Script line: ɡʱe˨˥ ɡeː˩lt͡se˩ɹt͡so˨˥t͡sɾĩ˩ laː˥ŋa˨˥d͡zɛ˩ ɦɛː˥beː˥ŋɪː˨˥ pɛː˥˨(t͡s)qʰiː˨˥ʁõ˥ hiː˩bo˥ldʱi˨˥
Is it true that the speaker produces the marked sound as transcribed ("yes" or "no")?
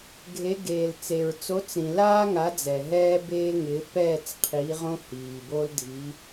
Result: yes